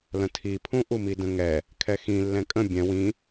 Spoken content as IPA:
l ə̃ tʰ i pʰ ũ ʔ u m i d ə̃ ŋ ɛ | kʰ ɛ x ĩ lː ɛ̃ kʼ ə̃ bʲ ɛ̃ w ĩ

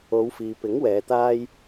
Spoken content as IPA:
o˨˧ w f iː˨ p ɪ˨˥ ŋ w ɛː˨˧ t̪ aː˥ j

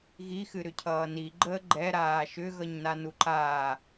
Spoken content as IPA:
ɣ i x ɨ ɾ ʏ cʰ ʌː n i ɡ͡ǃ əː ɡ͡ǃ ɛ ɾ aː ʃ ʏ ɣ ʌ ɲ n a n u ǃ aː

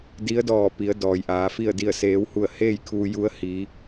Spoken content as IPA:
d i˧˥ ə̯ d ɔː˧˩ p i˩˧ ə̯ d ɔː˩ j ʔ aː˩˧ f i˥˨ ə̯ d i˥˨ ə̯ s eː˧˥ w h u˥˨ ə̯ h eː˥˨ j kʰ uː˧ j u˧˥ ə̯ h i˧˥

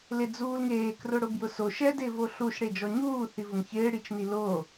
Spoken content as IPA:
l ɪ d͡z uː l ŋ eː k r ʊ ɽ ʊ b j ʊ s o ʃ ɛ d ɪː v o ɬ u ʃ ɽ e d͡ʒ ɔ ɲ uː θ i v ʊ ŋ ç ɪː ɽ i t͡ʃ n i l o

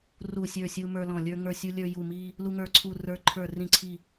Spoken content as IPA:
r u˧˩ sʲ ə˞˧˩ sʲ u˧ m ə˞˧ l ɔ̃˧˩ lʲ ə˞˧ ŋ ə˞˧˩ sʲ u˧ lʲ ə˞˧ j u˧˩ m i˧ | l u˧ ŋ ə˞˧˩ ǀʰ u˧˩ r ə˞˧ ǃʰ ə˞˧˩ r ĩ˧˩ ǀʰ i˧˩

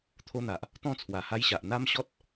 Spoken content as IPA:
t̪ʰ o˦ n̪ a˨ ʔ | t̪ ɔ̃˥˧ t͡sʰ w a˨˩ h a˦ j ɕ a˨ ʔ n̪ a˦ m ɕ ɔ˦ t̚

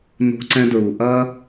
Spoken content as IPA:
n o̤˧ ǀ ɛ̃˧ d ɹ u˨ ʔ ɐ˦

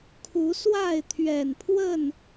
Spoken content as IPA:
kʰ u˨˦ s w a˥˨ ɪ̯ t̪ʰ ɥ ɛ˨˩ n pʰ w ə˥˨ n

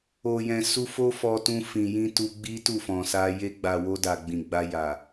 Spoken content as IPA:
o˨ j ɛ̃˨ s u˧ f o˦ f ɔ˧ t ũ˧ f ĩ˨ j ĩ˧ t u˧ ɡ͡b i˦ t u˦˨ f ɔ̃˨ s a˧ j e˧ ɡ͡b a˨ w o˧ d a˨ ɡ͡b ĩ˨ ɡ͡b a˧ j a˨

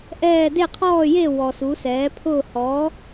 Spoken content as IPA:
ʔ ɛː˥˨ d e˥˨ qʰ ɔː˥˨ j e˥˨ w ɔ˨ s u˩˥ s ɛː˩˥ pʰ ʊː˥˨ h ɔː˩˥

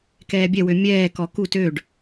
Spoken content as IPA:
k ɛː bʲ ɛ w ø mʲ ɛː k ɔ k u t ø ɖ

